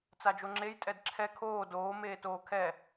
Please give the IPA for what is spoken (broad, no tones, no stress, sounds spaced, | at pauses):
t͡s a d͡ʒ o ŋ͡ǁ e j tʼ ɛ d ǁʰ ɛ kʰ oː d oː m eː t oː kʰ ɛ